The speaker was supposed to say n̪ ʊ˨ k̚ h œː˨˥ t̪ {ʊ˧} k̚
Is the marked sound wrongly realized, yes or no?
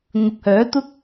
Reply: yes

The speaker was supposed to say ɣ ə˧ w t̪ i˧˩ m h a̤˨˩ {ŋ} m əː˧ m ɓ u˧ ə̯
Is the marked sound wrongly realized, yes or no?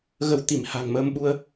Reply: no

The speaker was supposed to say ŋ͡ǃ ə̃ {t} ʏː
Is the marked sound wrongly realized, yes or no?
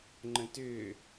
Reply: no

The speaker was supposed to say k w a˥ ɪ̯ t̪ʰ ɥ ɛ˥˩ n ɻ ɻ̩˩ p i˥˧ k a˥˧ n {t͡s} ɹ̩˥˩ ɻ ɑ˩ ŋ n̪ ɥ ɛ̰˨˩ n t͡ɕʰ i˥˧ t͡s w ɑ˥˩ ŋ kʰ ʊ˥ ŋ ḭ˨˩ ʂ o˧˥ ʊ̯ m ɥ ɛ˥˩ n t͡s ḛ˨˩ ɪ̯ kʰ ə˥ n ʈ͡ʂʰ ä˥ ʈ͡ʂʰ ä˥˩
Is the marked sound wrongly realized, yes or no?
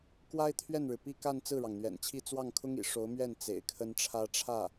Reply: no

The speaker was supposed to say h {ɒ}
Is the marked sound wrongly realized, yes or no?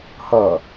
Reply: yes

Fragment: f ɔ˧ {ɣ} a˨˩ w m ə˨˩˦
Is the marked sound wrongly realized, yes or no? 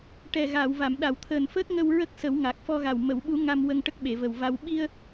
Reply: no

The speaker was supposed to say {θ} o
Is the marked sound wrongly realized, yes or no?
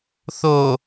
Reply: no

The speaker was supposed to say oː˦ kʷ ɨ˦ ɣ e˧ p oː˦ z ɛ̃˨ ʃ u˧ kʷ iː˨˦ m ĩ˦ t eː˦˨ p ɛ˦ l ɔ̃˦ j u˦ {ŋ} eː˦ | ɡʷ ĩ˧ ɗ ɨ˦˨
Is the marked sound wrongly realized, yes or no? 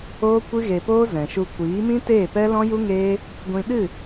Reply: no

